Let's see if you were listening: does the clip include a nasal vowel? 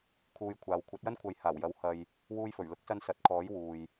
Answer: no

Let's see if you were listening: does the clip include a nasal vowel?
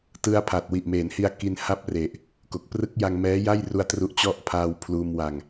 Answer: no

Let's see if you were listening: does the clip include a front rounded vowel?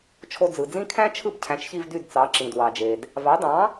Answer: yes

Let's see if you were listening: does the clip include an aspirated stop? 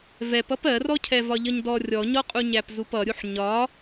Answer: yes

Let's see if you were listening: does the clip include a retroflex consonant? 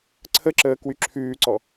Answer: no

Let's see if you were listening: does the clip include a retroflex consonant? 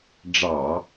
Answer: yes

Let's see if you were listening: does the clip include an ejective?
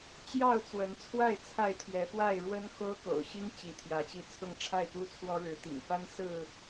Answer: no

